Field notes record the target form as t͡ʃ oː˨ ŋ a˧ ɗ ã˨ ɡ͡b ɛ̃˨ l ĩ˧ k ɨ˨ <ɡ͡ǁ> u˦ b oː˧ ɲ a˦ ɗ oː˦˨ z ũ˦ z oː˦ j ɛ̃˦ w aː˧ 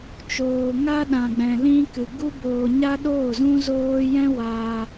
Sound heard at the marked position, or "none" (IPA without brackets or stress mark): ɡ